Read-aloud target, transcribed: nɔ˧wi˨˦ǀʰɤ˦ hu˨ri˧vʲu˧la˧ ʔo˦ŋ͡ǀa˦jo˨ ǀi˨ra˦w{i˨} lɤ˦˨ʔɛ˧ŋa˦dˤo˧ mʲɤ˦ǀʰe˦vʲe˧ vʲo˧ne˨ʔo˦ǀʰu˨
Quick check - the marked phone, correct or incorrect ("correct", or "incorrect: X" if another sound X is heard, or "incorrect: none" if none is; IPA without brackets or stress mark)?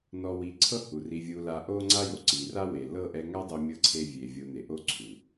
incorrect: e˨